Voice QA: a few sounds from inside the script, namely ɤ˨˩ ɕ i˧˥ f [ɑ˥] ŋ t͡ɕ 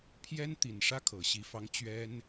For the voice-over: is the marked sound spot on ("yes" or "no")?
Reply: yes